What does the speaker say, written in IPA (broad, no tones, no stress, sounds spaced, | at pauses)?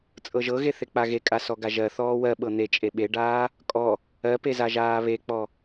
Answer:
t͡sʼ ɤ ʒ ɤ ɣ e θ e k͡p a ɣ e kʼ a s ɔ ɡ a ʒ ɜ θ ɔː w ɜ ɓ ɤ n̪ e t͡ʃʼ e ɓ e ɖ aː | kʼ ɔ | ɜ p e z a ʒ aː β e k͡p ɔ